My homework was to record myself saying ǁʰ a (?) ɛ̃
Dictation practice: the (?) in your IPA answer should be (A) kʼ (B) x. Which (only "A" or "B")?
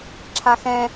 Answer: B